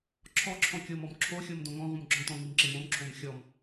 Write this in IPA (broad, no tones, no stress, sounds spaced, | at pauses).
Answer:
ǁʰ ɔ ǁʰ ɔ̃ kʲ o m ɔ m ǁʰ o xʲ o m d õ ŋ ɔ̃ ʁ ũ m ɡ͡ǁ ɔ̃ t ɔ̃ ŋ i m ǁ ɪ m õ m ǁʰ õ m xʲ ɔ m